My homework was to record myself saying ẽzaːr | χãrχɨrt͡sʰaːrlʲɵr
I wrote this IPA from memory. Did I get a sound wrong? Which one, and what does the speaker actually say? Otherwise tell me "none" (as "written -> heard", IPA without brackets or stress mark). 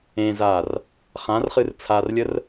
ɵ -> ə